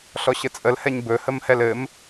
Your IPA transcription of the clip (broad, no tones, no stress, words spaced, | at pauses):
ɬɔɕɘt͡sʼəlhɛɲ bɵhəmhɛl ɘm